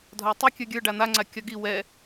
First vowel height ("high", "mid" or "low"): low